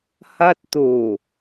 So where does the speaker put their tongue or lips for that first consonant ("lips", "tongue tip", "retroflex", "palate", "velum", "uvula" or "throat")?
throat